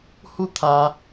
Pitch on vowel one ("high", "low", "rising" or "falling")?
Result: falling